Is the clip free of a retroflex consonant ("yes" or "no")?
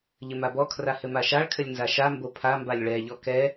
no